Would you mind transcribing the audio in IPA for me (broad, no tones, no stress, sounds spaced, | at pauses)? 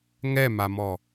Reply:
ŋ ɛ m a m ɔ